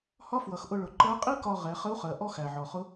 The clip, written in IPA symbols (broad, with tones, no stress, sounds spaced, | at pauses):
h ɒ˥ f w ʌ˩˧ x ʔ ʊ˧ ɭ ʊ˩˧ ǃ ɜ˧˥ qʼ i˥ k ɒ˧ ʁ ɛ˩˧ χ ə˧˥ u̯ χ ɜ˩˧ ʔ ɔ˥ x æ˩ ʕ ɔ˩ χ ʊ˧˥